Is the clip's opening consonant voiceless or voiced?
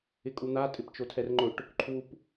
voiceless